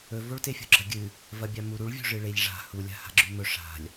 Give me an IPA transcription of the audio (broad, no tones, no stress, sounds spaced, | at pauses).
ɵ v o ɭ t e fʲ o̤ ɡ͡ǁ ɐ ɡʲ ɨ | v ɐ bʲ a m u ɾ u ɭ vʲ o̤ ʐ ɨ ɭ e ʎ ʐ a̤ h u lʲ a̤ h a̤ ɡ͡ǁ ʉ m ɵ ʂ a̤ lʲ